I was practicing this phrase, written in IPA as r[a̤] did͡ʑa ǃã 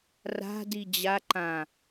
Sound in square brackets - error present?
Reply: no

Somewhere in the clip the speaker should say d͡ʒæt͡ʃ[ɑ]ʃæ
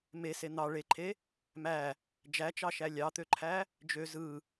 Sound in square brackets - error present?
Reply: no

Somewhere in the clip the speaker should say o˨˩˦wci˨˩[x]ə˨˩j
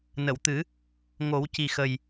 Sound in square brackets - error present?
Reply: no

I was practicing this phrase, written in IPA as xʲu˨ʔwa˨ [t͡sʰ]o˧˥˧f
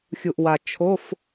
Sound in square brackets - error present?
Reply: yes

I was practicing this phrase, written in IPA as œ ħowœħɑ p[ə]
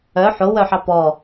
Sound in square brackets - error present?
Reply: yes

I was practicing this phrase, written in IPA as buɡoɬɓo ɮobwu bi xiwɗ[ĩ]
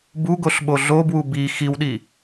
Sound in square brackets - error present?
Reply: yes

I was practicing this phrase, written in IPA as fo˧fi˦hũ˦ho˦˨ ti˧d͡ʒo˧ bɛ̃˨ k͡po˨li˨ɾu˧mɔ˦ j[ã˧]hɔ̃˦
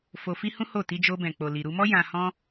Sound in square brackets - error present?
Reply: no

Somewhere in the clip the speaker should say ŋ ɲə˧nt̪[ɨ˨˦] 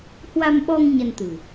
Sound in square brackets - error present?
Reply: yes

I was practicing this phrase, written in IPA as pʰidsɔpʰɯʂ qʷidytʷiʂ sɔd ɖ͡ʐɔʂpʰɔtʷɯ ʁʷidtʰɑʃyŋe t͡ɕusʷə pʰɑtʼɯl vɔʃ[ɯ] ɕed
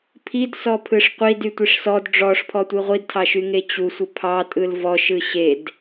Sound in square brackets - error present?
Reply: no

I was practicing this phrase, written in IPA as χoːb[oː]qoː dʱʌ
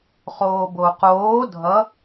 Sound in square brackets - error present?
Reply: yes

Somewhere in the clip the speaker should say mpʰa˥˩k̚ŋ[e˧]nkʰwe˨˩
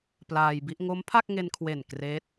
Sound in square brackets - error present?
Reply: no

